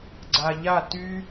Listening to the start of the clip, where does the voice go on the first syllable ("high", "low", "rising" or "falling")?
low